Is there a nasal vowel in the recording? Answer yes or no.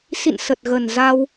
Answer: no